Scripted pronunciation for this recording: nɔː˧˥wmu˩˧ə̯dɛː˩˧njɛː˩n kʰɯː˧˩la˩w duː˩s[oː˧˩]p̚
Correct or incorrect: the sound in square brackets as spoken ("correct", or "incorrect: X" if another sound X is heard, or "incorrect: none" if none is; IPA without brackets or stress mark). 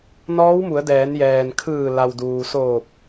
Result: correct